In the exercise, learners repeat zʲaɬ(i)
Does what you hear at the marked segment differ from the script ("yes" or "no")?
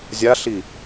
no